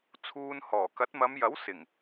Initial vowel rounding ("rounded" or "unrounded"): rounded